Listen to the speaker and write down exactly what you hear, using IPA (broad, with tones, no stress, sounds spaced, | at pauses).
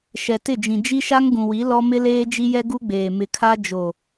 ʃ ɛ˨ t ɪ˦˨ d͡ʒ ĩ˨ d͡ʒ i˦ ʃ a˦ ŋ ɡ ũ˨ w i˨˦ l ɔ˦ m ɪ˦ l eː˦ d͡ʒ i˦ j ɛ˦ ɡ u˦ ɡ͡b eː˨ m ɪ˨ kʰ a˦ d͡ʒ o˨